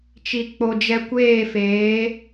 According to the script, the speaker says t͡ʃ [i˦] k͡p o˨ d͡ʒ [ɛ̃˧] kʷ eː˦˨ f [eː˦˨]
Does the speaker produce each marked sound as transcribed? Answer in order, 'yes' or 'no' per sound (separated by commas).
no, no, no